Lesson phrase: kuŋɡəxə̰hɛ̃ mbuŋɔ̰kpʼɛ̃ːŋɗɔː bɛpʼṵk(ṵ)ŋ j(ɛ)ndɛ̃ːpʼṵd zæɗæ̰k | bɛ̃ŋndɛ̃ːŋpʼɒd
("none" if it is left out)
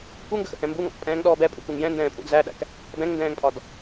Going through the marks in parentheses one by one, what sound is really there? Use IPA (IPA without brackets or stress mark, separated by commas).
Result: u, ɛ̃